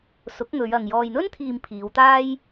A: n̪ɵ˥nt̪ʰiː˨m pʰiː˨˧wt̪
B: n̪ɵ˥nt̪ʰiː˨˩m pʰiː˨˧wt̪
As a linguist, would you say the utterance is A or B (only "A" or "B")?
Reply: A